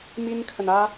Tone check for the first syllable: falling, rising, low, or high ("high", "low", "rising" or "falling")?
high